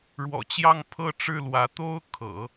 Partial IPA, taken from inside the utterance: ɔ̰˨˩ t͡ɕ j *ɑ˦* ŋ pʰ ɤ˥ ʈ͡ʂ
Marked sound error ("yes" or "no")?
yes